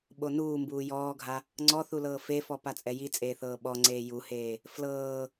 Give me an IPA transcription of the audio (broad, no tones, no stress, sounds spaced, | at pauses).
ɓ o n uː m b uː j ɔː ɡʱ a | ŋ͡ǀ ɔ θ u l ɤː f e f ɔ p a t͡sʼ ɛ j i t͡sʼ eː θ ɤː ɓ ɔ ŋ͡ǀ eː j u h eː | f l ɤː